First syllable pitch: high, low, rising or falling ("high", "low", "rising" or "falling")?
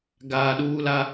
low